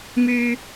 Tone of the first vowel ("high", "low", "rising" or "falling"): low